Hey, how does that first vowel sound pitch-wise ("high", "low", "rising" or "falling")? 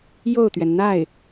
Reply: falling